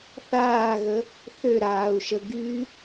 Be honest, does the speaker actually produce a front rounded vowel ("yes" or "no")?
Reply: yes